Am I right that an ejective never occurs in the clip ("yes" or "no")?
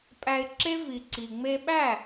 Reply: no